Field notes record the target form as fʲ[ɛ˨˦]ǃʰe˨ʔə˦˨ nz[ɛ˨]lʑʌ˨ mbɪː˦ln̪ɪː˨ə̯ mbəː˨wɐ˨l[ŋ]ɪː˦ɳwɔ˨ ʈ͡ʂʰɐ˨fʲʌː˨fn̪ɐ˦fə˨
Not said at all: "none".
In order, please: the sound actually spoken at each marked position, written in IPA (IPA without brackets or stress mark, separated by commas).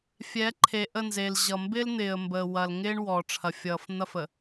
ɛ˨˦, e˨, ŋ